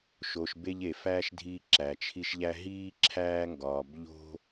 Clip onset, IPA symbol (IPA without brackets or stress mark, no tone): ʃ